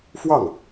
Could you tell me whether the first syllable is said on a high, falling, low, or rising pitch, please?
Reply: falling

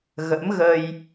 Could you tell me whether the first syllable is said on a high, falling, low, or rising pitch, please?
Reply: rising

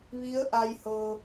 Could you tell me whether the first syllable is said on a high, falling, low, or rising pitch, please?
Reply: rising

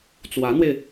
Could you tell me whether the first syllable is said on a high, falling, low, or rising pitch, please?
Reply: rising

